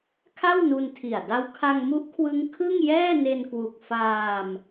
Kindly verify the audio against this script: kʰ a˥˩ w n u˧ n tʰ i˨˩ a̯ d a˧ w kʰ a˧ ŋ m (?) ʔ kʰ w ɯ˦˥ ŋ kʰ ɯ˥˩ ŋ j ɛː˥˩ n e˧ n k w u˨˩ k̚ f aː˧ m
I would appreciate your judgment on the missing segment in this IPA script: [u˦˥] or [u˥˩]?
u˦˥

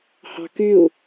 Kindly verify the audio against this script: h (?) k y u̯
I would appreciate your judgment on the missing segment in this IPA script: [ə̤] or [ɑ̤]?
ɑ̤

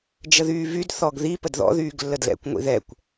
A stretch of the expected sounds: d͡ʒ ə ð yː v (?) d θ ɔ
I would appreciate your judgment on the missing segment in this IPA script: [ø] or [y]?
y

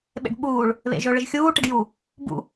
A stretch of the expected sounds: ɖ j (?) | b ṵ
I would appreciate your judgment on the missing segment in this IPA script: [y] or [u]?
u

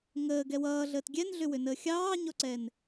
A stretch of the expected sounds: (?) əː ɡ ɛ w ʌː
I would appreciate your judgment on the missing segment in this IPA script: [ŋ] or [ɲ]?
ŋ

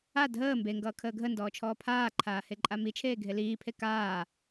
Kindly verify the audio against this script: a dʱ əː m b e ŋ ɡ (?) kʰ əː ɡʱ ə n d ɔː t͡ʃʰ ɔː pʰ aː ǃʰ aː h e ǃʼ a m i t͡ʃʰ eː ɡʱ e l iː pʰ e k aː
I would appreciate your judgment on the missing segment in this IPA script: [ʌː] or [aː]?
ʌː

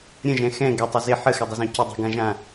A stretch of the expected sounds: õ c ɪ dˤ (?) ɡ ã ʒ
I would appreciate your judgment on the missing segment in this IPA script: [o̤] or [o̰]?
o̤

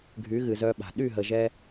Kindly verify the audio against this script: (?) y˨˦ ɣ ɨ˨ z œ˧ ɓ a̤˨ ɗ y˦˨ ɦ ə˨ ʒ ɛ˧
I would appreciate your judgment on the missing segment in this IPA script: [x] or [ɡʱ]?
ɡʱ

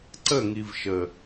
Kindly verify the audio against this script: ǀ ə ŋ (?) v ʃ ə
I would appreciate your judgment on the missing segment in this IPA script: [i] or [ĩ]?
i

